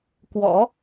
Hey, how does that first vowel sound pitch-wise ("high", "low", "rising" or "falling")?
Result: rising